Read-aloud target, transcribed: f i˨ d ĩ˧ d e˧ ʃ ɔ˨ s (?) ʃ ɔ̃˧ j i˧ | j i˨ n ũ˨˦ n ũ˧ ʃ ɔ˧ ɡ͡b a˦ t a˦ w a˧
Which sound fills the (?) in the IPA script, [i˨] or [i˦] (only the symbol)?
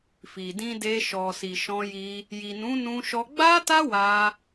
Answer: i˨